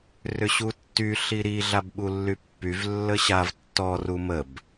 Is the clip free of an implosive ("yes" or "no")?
no